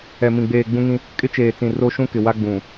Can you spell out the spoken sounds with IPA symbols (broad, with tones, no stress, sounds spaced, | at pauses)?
ɛ˨ m ĩ˨ ɡ͡b eː˨ ɡ͡b ũ˦ ŋ ĩ˦ | kʼ ɪ˦ t͡ʃ eː˨ t͡s ĩ˨ r o˦ ʃ ũ˦ k ɪ˨ w a˦ ɡ͡b ũ˨